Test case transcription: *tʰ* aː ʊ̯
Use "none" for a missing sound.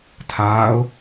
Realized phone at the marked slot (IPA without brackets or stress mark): tʰ